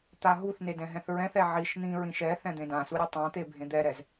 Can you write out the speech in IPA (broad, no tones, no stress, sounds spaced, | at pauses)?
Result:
t̪ a ɦ u θ n e d ɛ̃ ɦ ɛ̃ θ ɹ ɛ̃ θ ɛ ʕ i ʃ n̪ ĩ ɹ ĩ ʃ ɛ θ ɛ̃ d̪ ẽ d ã s u ɾʲ ʌ tˤ ã t̪ e bʱ ẽ d̪ ɛ ɾ ɛ z